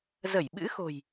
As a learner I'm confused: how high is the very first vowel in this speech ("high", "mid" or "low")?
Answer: mid